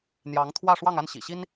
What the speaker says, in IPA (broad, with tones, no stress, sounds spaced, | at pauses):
n̪ j ɑ˧˥ ŋ t̪ʰ w ä˥˧ ʂ w ɑ˥˧ ŋ a˥˩ n ɕ ḭ˨˩ ɕ i˥ n